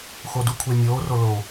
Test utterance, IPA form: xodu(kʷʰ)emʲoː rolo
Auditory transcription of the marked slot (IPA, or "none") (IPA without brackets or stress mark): kʷʰ